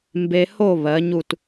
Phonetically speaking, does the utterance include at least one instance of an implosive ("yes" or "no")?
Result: no